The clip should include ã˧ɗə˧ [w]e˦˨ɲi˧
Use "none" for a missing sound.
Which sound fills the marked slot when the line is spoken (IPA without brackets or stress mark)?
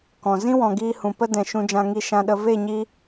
v